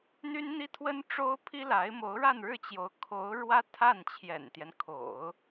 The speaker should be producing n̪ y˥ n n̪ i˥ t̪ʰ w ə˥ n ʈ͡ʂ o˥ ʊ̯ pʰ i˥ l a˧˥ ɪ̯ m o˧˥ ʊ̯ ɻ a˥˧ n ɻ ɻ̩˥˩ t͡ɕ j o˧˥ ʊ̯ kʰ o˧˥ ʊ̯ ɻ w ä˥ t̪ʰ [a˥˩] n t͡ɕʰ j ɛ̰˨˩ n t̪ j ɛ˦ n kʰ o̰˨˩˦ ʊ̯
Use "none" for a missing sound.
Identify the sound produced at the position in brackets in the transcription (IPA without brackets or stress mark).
a˥˩